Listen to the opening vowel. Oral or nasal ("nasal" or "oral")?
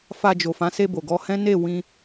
oral